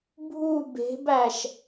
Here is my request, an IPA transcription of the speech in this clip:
bʱ u b e̤ b æ ʃ

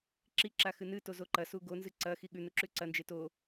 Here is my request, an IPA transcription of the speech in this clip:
ǁ i ǁ a x ɨ n ɨ t o z o ǃ ɐ s u ɡ o n z ɨ ǀ ɐ x i ɠ ʉ n u ǁ ʉ ǀ ɐ n d͡ʒ e t o

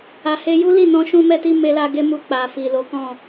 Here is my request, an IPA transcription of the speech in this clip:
a˧ h e˦ j u˦ l i˦˨ n ɔ̃˧ ʃ ũ˧ m ɛ˧ t i˧ m e˦ l a˦ ɡ e˦ m u˧ k͡p a˨ f i˨ l o˨˦ k ɔ̃˦˨

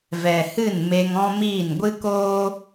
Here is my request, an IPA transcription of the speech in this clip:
v ɛ˨ h ɨ˦˨ n m e˧ ŋ ɔ̃˦ m iː˦˨ n ɡʷ ɨ˦ k oː˦

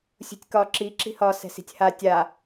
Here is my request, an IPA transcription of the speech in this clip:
sʲ ṳ tʲ k ɒ ǁ i ǁ i̤ h ɒ s ɛ̤ s i̤ tʲ h a tʲ a

